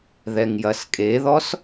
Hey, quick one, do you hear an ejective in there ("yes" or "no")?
yes